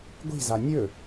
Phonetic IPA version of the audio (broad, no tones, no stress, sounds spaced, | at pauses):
ɡʷ i̤ z a nʲ ɵ